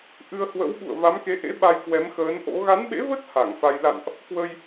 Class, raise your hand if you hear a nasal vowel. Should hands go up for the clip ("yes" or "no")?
no